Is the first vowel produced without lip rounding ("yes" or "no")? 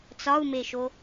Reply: no